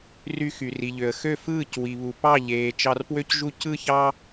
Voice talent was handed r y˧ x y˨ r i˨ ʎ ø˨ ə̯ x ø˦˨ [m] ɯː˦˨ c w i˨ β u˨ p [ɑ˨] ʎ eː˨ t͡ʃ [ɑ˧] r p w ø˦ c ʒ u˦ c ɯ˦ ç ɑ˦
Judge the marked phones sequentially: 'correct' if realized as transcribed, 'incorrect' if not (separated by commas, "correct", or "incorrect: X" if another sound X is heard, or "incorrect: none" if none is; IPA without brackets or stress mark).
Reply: incorrect: f, incorrect: ɑ˦˨, correct